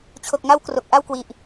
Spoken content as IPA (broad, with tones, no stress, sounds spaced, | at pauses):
t͡ɕʰ o˨˩ k̚ ŋ a˦˥ w k r o˨˩ k̚ ʔ a˥˩ w k w i˨˩ ʔ